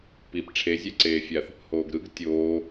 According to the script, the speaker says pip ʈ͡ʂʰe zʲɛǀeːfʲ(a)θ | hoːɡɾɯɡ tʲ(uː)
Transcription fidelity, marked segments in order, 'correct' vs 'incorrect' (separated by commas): correct, incorrect